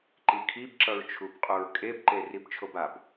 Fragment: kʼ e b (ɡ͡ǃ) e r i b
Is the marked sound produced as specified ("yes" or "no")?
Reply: no